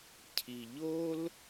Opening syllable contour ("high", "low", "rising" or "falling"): low